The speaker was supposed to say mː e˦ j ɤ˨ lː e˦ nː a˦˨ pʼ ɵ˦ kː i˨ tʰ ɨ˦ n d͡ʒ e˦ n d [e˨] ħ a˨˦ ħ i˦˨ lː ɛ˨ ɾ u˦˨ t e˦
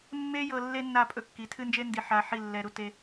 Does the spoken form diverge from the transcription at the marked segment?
yes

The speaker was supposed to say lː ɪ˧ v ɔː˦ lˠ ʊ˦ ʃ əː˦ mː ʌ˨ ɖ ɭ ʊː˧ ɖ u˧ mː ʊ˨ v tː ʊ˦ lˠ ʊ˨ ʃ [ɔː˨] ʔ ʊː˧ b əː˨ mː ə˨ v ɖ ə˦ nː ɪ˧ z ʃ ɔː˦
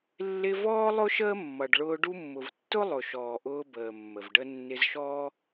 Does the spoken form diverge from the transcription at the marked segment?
no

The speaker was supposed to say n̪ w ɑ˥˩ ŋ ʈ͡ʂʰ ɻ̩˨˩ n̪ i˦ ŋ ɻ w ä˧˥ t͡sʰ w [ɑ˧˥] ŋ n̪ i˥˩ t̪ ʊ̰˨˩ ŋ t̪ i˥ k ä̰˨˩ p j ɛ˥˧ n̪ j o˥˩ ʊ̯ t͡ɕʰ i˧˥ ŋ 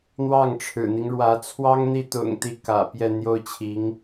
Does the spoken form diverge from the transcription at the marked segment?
yes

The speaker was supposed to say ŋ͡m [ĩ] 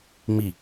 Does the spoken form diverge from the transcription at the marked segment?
yes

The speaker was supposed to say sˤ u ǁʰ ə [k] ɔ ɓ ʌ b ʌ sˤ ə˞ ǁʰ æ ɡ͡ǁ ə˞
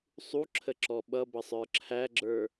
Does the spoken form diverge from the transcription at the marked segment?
yes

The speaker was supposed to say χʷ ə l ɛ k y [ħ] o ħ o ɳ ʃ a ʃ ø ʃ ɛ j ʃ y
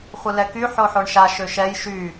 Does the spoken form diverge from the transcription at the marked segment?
no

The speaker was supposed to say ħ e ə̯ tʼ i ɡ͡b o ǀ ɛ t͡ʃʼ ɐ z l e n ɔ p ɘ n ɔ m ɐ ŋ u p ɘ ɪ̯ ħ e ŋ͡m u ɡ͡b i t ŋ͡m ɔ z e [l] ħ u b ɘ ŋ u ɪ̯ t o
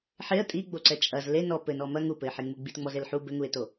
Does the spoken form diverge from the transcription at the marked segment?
no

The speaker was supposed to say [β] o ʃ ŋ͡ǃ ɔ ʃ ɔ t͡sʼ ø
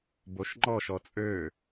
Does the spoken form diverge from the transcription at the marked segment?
yes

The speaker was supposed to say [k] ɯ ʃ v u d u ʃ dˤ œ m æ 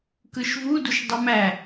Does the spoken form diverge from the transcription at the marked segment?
no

